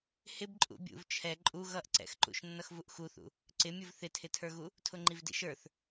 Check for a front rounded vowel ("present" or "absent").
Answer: absent